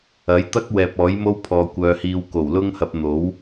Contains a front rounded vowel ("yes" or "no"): yes